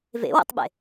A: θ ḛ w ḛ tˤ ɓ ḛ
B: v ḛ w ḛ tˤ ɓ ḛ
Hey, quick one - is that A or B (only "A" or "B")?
B